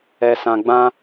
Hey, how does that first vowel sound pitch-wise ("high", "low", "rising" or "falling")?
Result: low